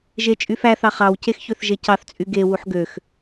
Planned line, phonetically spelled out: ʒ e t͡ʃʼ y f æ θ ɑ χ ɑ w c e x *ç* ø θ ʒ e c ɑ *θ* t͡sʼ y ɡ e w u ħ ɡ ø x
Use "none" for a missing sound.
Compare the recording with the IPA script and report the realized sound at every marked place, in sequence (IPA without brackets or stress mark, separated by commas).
ç, θ